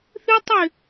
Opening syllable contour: high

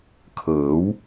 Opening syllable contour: rising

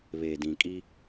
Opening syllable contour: low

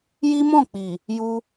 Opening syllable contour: high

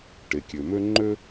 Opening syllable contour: low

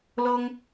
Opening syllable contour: high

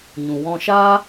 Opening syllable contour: low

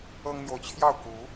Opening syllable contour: high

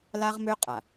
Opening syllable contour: high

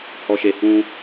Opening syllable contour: low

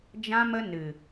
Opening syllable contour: high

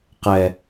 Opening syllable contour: low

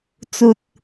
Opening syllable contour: low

